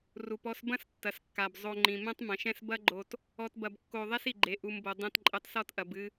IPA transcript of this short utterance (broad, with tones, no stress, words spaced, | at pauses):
ru˨pɔ˧sbɐ̃˦s tːɐ˨skːa˨b zˤo˧ ŋ͡ǃĩ˨ mɛ̃˧tˤmɐ̃˨ʃɛ̃˧s bɐ˦ɡ͡ǃo˧t | ɔ˧tbɐ˧bkːo˧ ðˤɛ˦si˨ɡ͡ǃe˨ ʔu˨mbo˨ dˤɛ̃˧tǃʼɘ˧tˤ sɔ˧tʔɐ˨b ɨ˧